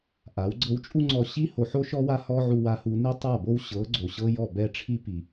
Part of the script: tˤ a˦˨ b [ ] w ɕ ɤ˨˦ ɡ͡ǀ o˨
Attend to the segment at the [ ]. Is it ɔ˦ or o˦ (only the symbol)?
o˦